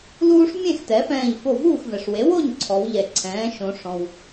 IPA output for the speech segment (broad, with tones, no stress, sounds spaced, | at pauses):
l uː˦ ʂ mʲ ẽ˥˨ x t ɛ˩˥ f ɛ̃ː˧˩ ʎ f o˧˩ v uː˥˨ x v ɛ˩ ʂ w e˩˥ w o˥˨ ɲ ǀʰ ɔ˩˧ w ʎ ɛ˩ ǀʰ ɛ̃ː˩˥ ʃ õ˩˧ ʂ ɔ̃˩ w